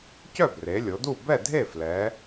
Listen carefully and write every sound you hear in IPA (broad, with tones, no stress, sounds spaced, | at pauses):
c œ˥˨ b r e˩˧ lʲ o˩˧ d u˥˨ b ɛ˥˨ dʱ e˥˨ f l ɛ˩˧